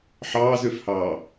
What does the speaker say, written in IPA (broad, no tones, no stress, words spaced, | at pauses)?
ħɑːzøfhɑː